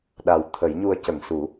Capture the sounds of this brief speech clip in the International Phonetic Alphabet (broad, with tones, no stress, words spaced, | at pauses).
ɗa˨˩wt̪ʰə˨˩˦jɲu˧ə̯ cə˨˩˨ŋsu˨˩˦